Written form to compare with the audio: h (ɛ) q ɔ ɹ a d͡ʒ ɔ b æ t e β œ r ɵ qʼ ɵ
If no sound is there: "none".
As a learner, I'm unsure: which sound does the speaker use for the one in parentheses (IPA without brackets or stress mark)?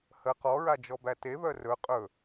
ə